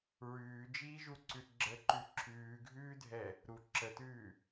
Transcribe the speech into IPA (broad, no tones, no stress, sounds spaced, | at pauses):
ɹ ʉː d͡ʒ iː ʒ u ǀ ʉ ɡ͡ǁ ə ǃ ʉ ǁʰ ʉː ɡʱ ʉː dʱ ɛ | ɾ u ǁ ə t ʉː